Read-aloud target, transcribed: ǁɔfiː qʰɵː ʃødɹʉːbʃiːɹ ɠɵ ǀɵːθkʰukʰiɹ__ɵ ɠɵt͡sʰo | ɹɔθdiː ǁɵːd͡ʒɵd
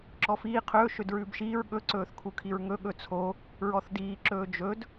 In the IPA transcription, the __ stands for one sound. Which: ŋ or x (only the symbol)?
ŋ